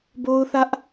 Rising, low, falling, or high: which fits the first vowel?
high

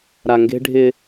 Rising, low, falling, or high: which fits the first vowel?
low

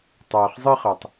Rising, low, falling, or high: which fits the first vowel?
low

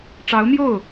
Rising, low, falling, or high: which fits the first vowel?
rising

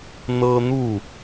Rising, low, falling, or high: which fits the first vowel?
high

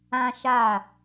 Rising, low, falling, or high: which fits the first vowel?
high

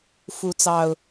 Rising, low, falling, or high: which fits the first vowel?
rising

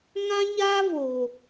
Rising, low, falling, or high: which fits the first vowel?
high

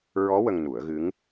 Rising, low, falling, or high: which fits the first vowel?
rising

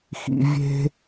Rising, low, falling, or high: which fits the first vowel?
high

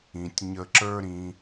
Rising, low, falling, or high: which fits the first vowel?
low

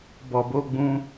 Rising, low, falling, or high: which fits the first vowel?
low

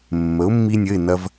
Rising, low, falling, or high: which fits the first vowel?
rising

